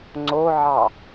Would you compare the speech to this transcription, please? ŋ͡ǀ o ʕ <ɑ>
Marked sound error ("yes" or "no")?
no